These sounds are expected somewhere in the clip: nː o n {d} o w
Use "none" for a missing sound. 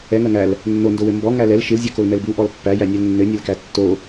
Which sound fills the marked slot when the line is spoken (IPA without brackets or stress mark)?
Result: d